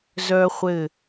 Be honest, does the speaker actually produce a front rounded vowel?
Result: yes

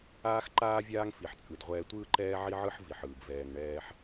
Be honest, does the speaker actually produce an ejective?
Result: yes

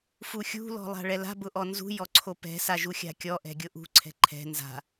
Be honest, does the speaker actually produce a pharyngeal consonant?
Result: no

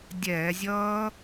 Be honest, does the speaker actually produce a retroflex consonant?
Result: no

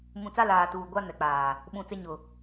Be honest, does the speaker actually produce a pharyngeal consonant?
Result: no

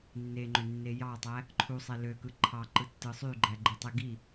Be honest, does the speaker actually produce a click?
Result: yes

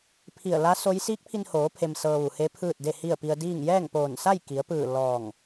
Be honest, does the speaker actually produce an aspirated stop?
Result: yes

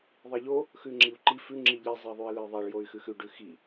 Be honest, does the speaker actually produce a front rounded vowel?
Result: yes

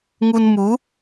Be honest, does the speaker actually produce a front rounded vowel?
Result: no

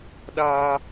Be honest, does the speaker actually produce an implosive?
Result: yes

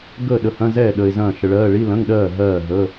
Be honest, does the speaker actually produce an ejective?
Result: no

